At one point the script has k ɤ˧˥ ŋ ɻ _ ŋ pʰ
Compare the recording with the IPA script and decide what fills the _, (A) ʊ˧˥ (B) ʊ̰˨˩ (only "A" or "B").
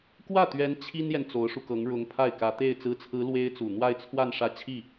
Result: A